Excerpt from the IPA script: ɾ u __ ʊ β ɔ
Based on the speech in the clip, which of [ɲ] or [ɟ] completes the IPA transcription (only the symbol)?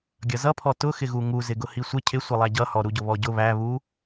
ɟ